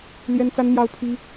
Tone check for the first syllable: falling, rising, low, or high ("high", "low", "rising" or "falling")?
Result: high